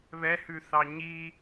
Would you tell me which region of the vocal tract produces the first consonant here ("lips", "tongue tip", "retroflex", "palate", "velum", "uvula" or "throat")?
lips